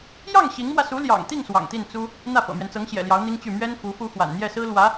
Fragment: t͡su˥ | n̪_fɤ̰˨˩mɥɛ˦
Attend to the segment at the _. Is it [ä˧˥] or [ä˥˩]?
ä˥˩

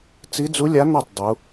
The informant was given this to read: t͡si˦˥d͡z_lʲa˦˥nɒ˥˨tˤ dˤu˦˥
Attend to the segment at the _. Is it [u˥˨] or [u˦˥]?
u˦˥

